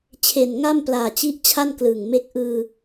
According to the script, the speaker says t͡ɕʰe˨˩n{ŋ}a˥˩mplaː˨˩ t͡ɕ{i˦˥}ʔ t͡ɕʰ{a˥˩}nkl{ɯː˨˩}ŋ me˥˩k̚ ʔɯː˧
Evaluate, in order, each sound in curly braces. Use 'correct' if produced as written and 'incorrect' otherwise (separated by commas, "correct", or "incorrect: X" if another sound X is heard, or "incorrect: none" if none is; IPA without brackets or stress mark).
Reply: correct, correct, correct, correct